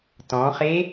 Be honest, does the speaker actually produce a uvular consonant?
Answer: yes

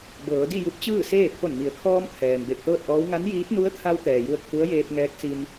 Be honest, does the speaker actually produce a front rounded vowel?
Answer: no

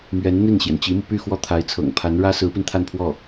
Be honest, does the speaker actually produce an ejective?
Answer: no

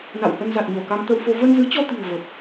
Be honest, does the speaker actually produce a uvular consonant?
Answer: no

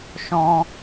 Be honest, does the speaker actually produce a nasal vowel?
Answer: yes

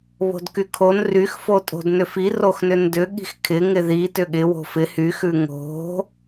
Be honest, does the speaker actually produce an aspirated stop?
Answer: yes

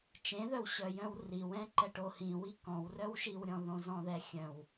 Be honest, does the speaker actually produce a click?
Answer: yes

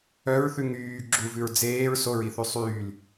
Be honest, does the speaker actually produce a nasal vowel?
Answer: no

